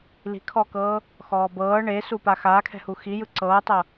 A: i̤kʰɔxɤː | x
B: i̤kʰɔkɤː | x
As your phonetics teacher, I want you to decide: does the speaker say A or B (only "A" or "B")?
B